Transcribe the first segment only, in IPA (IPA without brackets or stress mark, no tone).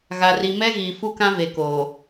ɣ